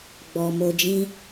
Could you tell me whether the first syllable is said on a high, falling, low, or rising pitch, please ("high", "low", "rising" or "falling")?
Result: low